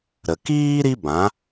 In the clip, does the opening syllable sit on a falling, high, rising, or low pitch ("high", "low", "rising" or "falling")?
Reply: low